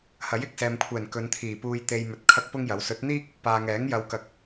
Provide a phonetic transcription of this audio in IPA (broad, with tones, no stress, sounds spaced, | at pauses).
h ɐ˨˥ j ɪ˨ k̚ s ɛː˨ m kʷʰ ɛː˨˩ n k ɵ˨˧ n t̪ʰ iː˨˩ p uː˧ j t̪ e˧ j m ɵ˧ t̚ kʰ ɐ˥ k̚ p ʊ˥ ŋ j ɐ˨˥ w s ɵ˨˥ t̚ n̪ iː˥ k̚ | p aː˨ ŋ ɛː˨˥ ŋ j ɐ˨˧ w k ɐ˨˥ k̚